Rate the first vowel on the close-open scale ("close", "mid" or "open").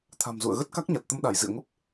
open